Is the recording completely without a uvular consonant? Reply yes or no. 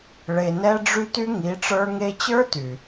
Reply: yes